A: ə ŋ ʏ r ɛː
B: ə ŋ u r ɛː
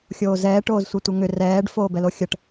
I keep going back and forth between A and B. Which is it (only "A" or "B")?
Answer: A